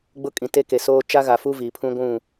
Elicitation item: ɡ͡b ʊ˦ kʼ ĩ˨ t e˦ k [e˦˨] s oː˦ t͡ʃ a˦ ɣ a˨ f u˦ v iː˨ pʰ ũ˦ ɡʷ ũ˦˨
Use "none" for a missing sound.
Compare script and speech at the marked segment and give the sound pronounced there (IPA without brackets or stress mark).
e˨